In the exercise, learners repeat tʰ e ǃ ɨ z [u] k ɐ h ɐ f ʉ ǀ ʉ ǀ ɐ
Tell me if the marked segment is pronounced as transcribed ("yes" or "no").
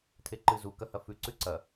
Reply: yes